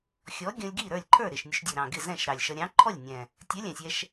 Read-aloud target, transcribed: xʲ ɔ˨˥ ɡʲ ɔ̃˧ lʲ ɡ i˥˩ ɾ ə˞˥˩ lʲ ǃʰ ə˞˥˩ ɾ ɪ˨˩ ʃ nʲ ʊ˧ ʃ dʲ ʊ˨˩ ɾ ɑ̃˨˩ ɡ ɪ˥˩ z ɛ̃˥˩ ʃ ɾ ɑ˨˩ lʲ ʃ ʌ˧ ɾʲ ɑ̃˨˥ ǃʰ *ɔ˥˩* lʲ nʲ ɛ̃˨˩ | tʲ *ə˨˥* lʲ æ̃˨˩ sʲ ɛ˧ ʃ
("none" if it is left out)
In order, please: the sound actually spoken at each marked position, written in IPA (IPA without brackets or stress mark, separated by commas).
ɔ˥˩, ə˨˥